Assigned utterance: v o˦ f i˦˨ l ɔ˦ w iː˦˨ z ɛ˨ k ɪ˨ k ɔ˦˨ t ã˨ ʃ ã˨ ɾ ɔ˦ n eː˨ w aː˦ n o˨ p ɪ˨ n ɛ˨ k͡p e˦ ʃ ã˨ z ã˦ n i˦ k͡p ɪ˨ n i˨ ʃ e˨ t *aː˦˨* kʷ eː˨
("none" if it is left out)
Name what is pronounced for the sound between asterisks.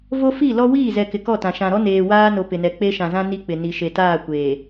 aː˦˨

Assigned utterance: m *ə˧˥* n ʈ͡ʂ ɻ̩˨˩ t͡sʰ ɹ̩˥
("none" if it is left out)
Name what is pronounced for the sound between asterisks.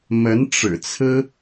ə˧˥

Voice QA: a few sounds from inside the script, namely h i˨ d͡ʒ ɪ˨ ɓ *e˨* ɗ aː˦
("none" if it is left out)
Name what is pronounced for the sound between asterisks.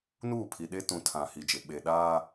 e˨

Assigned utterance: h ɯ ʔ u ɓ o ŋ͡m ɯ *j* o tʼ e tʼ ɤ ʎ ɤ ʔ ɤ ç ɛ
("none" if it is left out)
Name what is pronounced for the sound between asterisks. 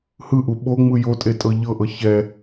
j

